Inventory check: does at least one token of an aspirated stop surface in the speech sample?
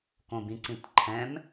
yes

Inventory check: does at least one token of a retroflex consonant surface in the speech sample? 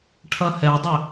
yes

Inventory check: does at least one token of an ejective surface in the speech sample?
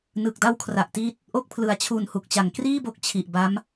no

